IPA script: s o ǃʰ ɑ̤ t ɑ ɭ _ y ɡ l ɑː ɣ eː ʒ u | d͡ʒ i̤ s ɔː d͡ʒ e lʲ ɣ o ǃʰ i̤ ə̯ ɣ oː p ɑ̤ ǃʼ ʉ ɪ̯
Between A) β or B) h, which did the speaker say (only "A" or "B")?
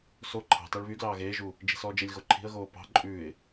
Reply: A